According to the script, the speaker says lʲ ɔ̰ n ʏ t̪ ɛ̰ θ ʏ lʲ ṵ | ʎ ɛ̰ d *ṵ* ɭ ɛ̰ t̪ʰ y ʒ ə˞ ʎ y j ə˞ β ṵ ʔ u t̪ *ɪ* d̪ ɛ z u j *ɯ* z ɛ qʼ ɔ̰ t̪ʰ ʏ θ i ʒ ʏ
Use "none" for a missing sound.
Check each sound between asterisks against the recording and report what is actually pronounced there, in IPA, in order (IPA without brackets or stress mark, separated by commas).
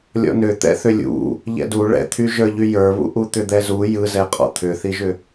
u, ʏ, ɯ